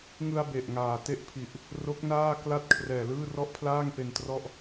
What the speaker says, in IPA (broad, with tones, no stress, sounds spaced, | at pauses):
ŋ ɯ˧ a̯ b e˨˩ ʔ ŋ aː˨˩ t e˥˩ ʔ pʰ i˨˩ ʔ | r o˦˥ k̚ n aː˥˩ k l a˥˩ t̚ kʰ r ɛː˨˩ l ɯː˥˩ r ɔ˥˩ ʔ pʰ l aː˥˩ ŋ p e˧ n t r ɔ˥˩ ʔ